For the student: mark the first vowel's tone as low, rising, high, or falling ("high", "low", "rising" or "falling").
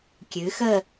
rising